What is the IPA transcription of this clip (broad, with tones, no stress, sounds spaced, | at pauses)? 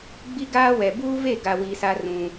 ɡ͡b i˦ ɡ aː˦ w ɛ˨ b uː˦ v e˦˨ ɡ a˨ w i˨ s a˦ r ũ˦